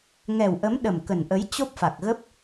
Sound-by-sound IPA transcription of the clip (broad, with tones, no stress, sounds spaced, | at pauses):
ŋ ɛ˨˩ w ʔ ə˨˦ m ɗ ə˨˩ m k ə˨˩ n ʔ ə˨˦ j t͡ɕ o˦˥ p̚ f a˨˩ k̚ ɣ ə˦˥ p̚